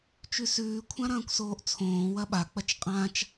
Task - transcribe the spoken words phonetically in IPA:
t͡ʃ ʉ s ʉː kʷʰ ã ɾ ɐ̃ː kʷ s oː ʔ t͡sʰ õː w ɐ ɓ a k͡p ɐ t͡ʃ qʼ ã t͡ʃ

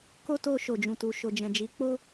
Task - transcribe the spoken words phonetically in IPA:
k o˦ t o˧ ʃ o˨ d͡ʒ ũ˨ t u˨ ʃ o˨ d͡ʒ ɛ̃˨ d͡ʒ i˨˦ k͡p o˦

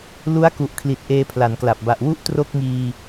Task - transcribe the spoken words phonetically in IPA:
l u˦˥ a̯ k u˨˩ ʔ kʰ l i˨˩ t̚ ʔ eː˧ pʰ l a˩˦ n k l a˨˩ p̚ b a˨˩ ʔ w u˥˩ ʔ t r o˥˩ k̚ ŋ iː˧

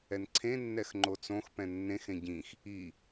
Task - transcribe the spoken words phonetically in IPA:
ɛ n ǀʰ ẽ nː ɛ x ŋ͡ǃ o t͡s õ x p ɛ̃ nː ẽ x ẽ ɟ ĩ x | i

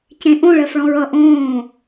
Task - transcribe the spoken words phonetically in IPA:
c ẽ ʔ õ ɭ ɜ f ɭ ɔ̃ ɹ ʌ ʔ õː

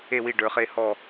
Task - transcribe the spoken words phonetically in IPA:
e˥˨ w i˥˨ ɖ ə˞˩˧ χ e˥˨ h ɔ˥˨

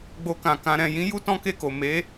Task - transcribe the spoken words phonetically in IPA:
ɡ͡b o˧ k ã˨ k ã˧ ɾ ɛ̃˨ j ĩ˨˦ j u˦ t ɔ̃˦ k e˦˨ k o˨ m e˨˦

